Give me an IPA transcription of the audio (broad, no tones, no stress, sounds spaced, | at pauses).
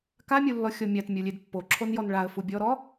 k a mʲ u lː ɔ xʲ ɔ mʲ a t mʲ o lʲ e d pː o ǁʰ o n j ɔ n ɭ a ə̯ f u bʲ ɔ ɾ ɔ